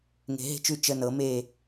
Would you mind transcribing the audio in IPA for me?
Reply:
ŋ e̤˨˥ ɦ e̤˥ t͡ʃ ʉ˦˨ t͡ʃ ə˦˨ n ɤ˨˥ m e˦˨

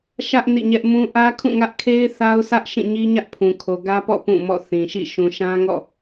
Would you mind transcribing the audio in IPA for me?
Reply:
ʃ ä˦ ʔ n ḭ˦˨ ɲ ɛ˦ ʔ m ũ˦ ʔ ä˦ kʰ ũ˦˨ ŋ ä˦ ʔ kʰ e˦ ɪ̯ θ a˦ ʊ̯ s ä˦ ʔ ʃ ĩ˦˨ ɲ i˦ ɲ ä˦ ʔ pʰ ũ˨ kʰ o˨ ɡ ä˦ p ɔ̰˦˨ p ũ˦˨ m ɔ̰˦˨ θ ĩ˨ ʃ ḭ˦˨ ʃ ũ˨ ʃ ã˦ ŋ ɔ̰˦˨

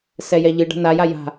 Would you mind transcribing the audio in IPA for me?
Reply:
s ɛ j ɛ ʎ ɨ ɖ a̤ n a j a j a̤

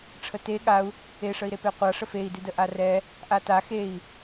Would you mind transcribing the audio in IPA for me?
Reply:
ʈ͡ʂʰ ə t e ɠ a u̯ | e ʂ ə i̯ ɾ e p e qʷ a ʂ ə f e i̯ d ʉ d ə ʔ a r ɛ | ʔ a t a x e i̯

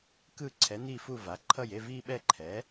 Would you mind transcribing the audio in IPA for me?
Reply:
k ɯ˥˧ ǀʰ ɛ˩˥ n̪ i˥˧ f u˥˧ v a˩˥ ǃʰ ʌ˥˧ j e˥˧ v i˥˧ ɓ ɛ˥˧ ǃʰ ɛ˩˥

